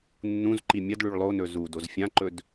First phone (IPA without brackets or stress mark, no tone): nː